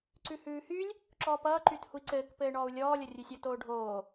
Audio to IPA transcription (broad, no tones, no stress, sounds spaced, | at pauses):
ǀ ʉ h ʉː h y lʲ | ǁ ɔː p ʌː ǃ y t h u i̯ ǀ ɘː k p ɘː ɳ ɔː u̯ lʲ ɔː lʲ ʌ rʲ ʉ sʲ ʌ t oː ɖʱ oː